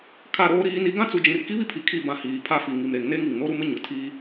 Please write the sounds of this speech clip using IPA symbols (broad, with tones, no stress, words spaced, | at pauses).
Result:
kʰa˦˨ɾoː˦ɾiː˦ni˦ ɡã˦t͡su˨d͡ʒĩ˨r ki˦βi˦pʰi˨ kʰi˦˨bã˨ hiː˨pʰa˦fi˨ ŋi˨mɾe˨ŋne˦ŋ i˨ŋno˦ɾu˦mɪ˦ ɲʊ˨tʰiː˦